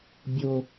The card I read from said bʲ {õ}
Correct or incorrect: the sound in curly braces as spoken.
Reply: incorrect: o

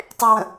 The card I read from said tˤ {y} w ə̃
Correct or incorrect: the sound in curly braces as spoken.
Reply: correct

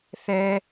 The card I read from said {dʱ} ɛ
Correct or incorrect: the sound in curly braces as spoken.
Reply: incorrect: θ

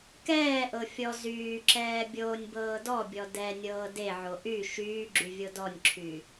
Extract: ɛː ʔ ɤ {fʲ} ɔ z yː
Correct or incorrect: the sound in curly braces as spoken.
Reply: correct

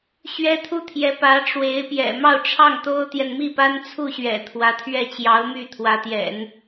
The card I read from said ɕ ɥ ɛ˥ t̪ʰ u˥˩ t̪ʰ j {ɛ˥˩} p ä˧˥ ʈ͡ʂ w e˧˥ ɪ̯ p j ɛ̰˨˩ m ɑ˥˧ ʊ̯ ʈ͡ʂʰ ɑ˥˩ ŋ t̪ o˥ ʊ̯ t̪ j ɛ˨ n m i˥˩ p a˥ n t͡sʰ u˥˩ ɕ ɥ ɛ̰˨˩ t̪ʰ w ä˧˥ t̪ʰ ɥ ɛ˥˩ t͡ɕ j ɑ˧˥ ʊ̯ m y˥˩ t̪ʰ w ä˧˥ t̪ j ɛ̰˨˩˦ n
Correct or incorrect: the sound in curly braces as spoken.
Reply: incorrect: ɛ˧˥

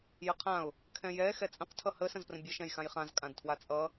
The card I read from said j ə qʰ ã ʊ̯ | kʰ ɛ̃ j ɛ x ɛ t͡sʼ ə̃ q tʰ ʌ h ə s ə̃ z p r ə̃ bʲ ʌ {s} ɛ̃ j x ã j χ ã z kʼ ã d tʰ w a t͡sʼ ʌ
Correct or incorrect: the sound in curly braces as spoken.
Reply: incorrect: ʃ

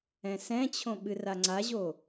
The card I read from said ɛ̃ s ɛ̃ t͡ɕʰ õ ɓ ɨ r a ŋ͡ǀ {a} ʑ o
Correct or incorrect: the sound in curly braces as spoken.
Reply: correct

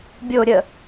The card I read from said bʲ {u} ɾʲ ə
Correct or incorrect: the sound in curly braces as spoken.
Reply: incorrect: o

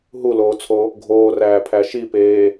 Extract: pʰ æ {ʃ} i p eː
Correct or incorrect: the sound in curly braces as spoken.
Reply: correct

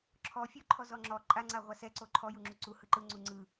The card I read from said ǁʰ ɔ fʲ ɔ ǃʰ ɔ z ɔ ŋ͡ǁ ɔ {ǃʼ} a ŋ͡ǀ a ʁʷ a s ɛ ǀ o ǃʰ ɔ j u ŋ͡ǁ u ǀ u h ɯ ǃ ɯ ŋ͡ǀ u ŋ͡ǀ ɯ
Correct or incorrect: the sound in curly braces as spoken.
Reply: correct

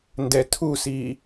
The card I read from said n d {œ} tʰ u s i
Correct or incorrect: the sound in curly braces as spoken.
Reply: incorrect: ɛ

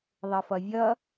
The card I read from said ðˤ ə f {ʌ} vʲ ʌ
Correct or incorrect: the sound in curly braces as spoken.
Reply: correct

